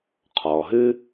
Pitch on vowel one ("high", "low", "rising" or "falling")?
low